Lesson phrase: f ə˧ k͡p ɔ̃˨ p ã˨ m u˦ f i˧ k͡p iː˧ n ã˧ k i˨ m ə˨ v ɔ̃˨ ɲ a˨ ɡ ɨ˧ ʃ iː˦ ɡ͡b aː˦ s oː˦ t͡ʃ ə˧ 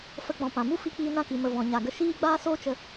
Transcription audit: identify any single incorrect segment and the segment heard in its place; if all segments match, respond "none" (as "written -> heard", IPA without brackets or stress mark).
ɨ˧ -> ə˧